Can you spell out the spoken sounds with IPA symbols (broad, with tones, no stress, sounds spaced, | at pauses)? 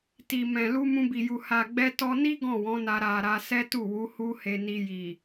t i˨ m ɛ̃˨ l u˧ m ũ˧ b i˨ j u˨ h a˨ ɡ͡b ɛ˧ t ɔ˧ n i˦ ɡ ɔ̃˦˨ w ɔ̃˨˦ n a˧ ɾ a˨ ɾ a˧ s ɛ˦ t u˦˨ w u˨˦ h u˦ h e˧ n i˧ j i˨